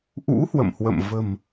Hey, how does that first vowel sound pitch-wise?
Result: rising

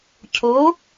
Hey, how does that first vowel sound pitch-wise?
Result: rising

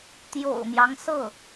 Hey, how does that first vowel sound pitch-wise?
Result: low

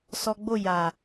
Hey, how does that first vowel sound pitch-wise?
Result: high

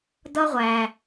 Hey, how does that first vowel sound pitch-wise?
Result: high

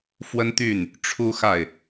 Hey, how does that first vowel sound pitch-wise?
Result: high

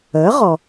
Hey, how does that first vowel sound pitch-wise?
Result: rising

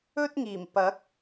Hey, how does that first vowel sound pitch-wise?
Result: high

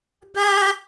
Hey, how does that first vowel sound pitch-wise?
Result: high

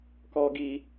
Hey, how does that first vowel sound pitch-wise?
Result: high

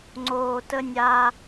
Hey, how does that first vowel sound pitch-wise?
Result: low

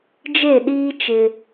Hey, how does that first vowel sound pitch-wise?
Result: falling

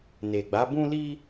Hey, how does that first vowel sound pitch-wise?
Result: low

